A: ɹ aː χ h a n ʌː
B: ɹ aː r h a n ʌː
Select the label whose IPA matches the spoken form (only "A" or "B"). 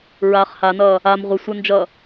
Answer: A